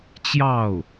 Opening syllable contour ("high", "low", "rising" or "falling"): falling